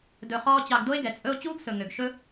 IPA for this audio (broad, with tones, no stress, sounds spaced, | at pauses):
d ɵ˧ χ ɔː˦ t͡ɕ ɑ˧ ɡ d o˦ e̯ ɡ ɛ˨ t͡sʼ ɵ˦ o̯ t͡ɕ uː˦ ɡ s ɵ˨ ŋ ø˨ ɡ ʃ ɵ˦